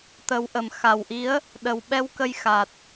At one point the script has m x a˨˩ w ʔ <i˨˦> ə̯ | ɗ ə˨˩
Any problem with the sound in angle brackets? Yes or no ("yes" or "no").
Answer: no